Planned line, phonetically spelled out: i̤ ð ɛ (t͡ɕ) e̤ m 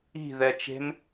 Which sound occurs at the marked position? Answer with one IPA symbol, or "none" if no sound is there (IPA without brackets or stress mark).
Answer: t͡ʃ